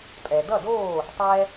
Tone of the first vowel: low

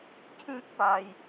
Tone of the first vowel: high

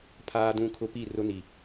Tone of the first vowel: high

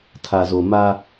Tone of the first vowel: low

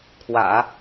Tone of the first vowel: low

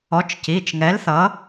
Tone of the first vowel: rising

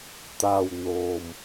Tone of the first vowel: low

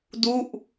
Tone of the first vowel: falling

